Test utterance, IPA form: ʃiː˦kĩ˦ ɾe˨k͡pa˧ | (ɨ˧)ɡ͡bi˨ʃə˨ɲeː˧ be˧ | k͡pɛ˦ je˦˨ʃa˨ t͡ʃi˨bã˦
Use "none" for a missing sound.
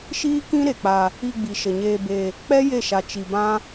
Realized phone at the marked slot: i˧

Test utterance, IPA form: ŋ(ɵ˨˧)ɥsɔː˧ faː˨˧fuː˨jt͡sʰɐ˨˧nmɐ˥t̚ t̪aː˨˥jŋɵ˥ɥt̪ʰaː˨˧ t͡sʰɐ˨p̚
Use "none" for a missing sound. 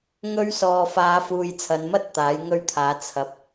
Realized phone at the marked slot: ɵ˥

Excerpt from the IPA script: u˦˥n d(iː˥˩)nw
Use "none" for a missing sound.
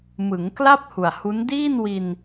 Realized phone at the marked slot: iː˥˩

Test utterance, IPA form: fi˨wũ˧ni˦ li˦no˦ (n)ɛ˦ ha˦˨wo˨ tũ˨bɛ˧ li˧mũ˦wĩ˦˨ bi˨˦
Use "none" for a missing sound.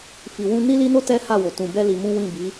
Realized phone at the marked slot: t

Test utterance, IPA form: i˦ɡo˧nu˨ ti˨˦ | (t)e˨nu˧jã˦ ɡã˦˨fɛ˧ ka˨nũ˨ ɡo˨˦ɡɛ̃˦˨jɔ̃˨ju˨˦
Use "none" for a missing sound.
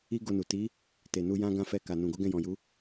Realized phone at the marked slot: t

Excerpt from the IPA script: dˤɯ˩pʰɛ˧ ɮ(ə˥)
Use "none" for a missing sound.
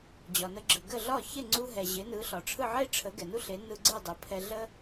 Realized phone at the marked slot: ə˥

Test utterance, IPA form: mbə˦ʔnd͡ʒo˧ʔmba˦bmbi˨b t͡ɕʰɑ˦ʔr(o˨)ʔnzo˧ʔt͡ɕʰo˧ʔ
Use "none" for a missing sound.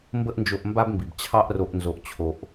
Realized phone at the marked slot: o˧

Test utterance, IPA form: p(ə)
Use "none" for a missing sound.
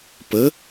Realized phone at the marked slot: ə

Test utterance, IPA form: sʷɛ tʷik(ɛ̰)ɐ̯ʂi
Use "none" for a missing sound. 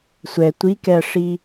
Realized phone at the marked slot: ɛ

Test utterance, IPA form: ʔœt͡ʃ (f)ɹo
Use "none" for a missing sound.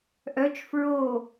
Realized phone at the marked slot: f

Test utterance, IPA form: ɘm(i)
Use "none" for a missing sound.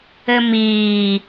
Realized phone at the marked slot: iː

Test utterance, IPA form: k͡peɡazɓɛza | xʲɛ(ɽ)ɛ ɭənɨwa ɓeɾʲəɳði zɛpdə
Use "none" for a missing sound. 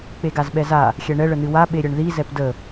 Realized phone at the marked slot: ɳ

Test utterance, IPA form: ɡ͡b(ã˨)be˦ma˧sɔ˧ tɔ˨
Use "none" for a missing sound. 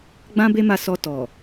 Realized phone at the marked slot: ã˦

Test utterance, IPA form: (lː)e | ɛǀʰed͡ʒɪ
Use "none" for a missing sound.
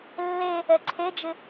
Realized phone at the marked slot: lː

